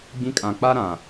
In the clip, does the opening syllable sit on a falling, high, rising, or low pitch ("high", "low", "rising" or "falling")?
high